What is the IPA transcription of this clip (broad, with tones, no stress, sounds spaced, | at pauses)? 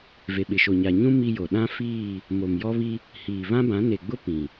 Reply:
v e˨ ɓ ɪ˨ ʃ o˨ ɲ a˨ ɲ ũ˦ m i˦ j o˨ ɗ ã˦ f iː˦˨ | m o˨ m j ɔ˦ β i˦ | h iː˨ β ã˦ b ã˨˦ n e˨ ɡ͡b ʊ˦ p ĩ˨